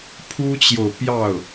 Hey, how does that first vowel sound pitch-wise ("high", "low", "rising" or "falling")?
high